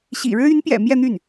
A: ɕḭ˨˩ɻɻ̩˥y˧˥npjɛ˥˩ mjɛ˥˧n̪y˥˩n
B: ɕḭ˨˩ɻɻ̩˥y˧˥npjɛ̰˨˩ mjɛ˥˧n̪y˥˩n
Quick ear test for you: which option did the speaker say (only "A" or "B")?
B